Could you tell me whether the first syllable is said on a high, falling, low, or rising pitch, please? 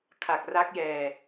low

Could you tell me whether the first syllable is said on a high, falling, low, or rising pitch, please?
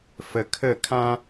low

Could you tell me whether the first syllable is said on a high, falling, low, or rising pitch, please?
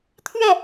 falling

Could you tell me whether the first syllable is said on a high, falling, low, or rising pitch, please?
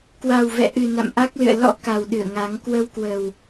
low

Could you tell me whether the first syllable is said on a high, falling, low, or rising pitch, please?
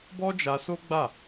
high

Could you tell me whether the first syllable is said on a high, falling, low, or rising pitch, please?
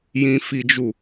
high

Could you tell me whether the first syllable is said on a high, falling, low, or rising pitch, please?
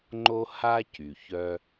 high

